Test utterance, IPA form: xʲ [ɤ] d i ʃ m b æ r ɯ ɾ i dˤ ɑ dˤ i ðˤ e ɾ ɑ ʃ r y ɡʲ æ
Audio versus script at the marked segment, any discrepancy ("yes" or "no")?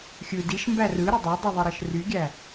yes